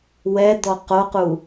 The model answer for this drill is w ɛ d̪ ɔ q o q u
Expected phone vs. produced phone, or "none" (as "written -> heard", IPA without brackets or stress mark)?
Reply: none